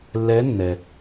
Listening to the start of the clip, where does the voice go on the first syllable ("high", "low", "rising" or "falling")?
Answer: rising